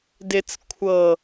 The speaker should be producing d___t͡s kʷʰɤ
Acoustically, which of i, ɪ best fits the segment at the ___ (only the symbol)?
ɪ